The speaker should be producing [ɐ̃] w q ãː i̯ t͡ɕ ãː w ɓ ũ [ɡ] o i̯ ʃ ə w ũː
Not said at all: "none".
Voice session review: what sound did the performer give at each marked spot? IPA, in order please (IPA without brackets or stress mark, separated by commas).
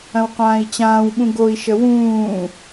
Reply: ɐ̃, ɡ